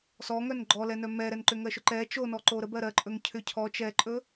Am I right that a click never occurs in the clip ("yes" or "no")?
no